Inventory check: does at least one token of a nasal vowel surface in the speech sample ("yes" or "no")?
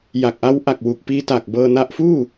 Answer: no